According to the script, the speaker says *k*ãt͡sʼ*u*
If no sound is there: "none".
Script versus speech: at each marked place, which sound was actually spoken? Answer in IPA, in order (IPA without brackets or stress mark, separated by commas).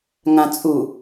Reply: ŋ, u